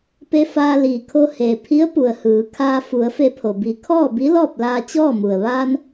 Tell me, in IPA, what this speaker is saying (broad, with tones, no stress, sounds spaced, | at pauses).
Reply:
p e˧ f aː˧ l iː˩ kʰ o˧ h eː˩ pʰ i˧˥ ə̯ p u˩ ə̯ h ɯː˩˧ kʰ aː˧ f u˩˧ ə̯ f e˧ pʰ o˩ b i˩˧ kʰ ɔː˥˨ b i˧˥ l ɔː˥˨ p̚ l aː˧ t͡ɕ ɔː˥˨ m u˩ ə̯ ʋ aː˧ n